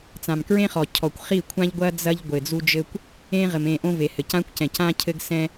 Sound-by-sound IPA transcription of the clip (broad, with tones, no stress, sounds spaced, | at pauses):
t͡s ã˨ m k ɹ ẽ˦ χ ɔ˨ cʰ ɔ˨ kʷ χ i˦˨ kʷʰ ã˦ ʎ ɡʷ ɐ˦ d͡z ɐ˦ ʎ ɡʷ ɘ˨ d͡z u˦ d͡ʒ ɘ˦ kʷ | ẽ˦ ʁ ɘ˨ m ẽ˦˨ ʔ õ˦ v e˨ h ɘ˨ c ã˦ kʷ c ɛ̃˨ c ã˦ cʰ ɘ˦ ɡ s ɛ̃˦